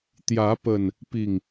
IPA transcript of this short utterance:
t̪ j ä˨˦ p ə˨˩ n | p i˨˩ ŋ

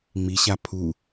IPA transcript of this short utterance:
ŋ͡m i ɕ a pʰ u

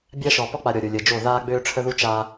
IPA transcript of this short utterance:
bʲ a˦ ʃ ɔ˨ p ɔ˦ k͡p a˨ ɾʲ ɔ˨ ɾʲ o˨ lʲ əː˨ d͡ʒ o˦˨ ð aː˦ ɡ͡b øː˦ ʈ͡ʂʰ ə˦ ð u˦ t͡ʃ a˦

